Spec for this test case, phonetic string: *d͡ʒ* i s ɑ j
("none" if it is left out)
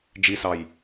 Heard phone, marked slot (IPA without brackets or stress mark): d͡ʒ